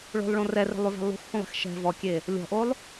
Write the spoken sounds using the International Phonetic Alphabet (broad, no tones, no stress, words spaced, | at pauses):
ɭo̤lˠɭõ rɛre̤lˠʉvɛ̤ lˠṳxhũlˠe̤x ʃɛ̤ vɔkʲe | lʲɔ̤ʔolˠ